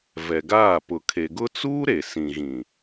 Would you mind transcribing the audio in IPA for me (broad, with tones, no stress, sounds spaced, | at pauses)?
v ɛ˨ ɡ aː˦˨ p ʊ˨ kʰ e˨ ɡ ʊ˦ t͡s uː˦ ɾ e˨ s ĩ˨ ɣ ĩ˨